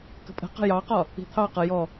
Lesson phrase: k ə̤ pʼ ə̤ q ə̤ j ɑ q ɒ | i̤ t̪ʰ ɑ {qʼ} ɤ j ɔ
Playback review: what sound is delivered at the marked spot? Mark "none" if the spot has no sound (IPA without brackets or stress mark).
q